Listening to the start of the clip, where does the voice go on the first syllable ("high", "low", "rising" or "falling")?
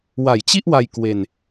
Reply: low